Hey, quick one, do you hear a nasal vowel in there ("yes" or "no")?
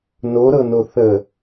no